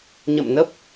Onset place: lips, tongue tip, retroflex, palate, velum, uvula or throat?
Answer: palate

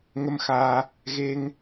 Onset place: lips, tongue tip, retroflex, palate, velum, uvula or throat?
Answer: velum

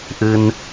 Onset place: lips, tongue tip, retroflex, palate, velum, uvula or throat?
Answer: throat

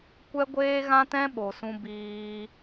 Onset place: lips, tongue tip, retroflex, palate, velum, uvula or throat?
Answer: velum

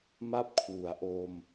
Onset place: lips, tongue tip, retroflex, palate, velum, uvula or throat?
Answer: lips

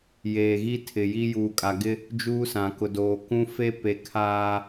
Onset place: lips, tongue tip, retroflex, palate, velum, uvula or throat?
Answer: palate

